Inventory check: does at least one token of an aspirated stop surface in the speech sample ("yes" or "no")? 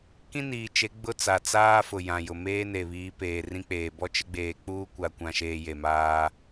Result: no